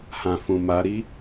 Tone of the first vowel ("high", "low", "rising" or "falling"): low